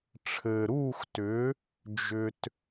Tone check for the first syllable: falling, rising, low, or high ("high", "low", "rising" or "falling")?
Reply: low